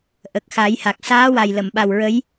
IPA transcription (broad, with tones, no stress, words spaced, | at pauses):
ʔə˨˩k̚xa˨˩˦jha˨˩k̚ saː˧˥wa˨˩jlə˨˩˨mɓa˨˩w ɹə˧˥j